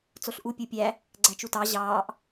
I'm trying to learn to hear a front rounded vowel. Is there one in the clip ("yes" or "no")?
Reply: no